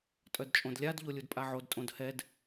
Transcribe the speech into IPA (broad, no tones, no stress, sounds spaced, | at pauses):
tʼ œ d t͡ʃʼ õ d lʲ a d ʎ o lʲ u d pʼ a ʕ o d tʼ õ d h ɛ d